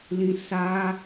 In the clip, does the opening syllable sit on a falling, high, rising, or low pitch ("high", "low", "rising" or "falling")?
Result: low